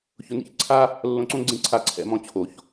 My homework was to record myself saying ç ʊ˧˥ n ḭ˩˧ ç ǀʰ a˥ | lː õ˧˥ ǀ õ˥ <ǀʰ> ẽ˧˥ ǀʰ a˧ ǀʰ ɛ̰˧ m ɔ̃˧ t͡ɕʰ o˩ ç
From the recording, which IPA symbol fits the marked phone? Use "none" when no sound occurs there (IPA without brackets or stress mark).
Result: ɡ͡ǀ